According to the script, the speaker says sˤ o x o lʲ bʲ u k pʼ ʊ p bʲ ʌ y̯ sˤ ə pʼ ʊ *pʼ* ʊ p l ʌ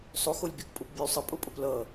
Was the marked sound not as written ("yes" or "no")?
no